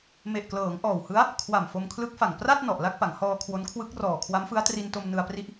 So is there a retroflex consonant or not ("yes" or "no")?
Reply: no